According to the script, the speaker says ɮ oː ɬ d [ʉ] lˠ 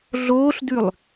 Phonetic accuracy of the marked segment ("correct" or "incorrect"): correct